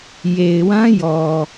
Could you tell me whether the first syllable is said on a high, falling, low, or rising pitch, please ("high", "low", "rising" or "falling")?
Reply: low